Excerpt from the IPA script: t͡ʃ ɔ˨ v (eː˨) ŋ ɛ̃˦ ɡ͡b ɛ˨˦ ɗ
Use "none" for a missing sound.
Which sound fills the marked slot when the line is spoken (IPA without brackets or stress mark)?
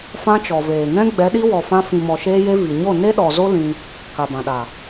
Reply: eː˨